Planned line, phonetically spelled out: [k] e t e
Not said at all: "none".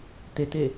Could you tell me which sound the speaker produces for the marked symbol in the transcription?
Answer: t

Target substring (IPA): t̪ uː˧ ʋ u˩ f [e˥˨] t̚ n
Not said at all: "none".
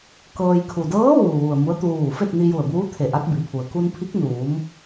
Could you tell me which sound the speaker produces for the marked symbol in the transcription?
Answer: e˥˨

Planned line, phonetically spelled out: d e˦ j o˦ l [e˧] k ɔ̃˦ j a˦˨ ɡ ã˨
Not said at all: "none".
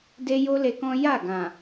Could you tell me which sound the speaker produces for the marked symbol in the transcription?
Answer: e˧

